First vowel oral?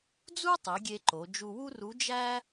yes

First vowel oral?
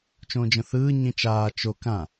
no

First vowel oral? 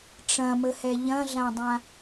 no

